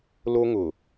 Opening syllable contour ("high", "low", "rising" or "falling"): high